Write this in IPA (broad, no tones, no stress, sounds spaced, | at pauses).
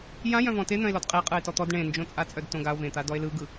j ã j œ̃ v ɔ̃ t e n̪ œ̃ e̯ l ɔ d qʼ e qʼ ɯ e̯ t ɔ t̪ ɔ d ɳ ẽ n d͡ʒ õ t͡sʼ a t͡sʼ œ d t õ ɡ a o̯ v ẽ t̪ a d ɔ e̯ l ɯ ɡ ɯ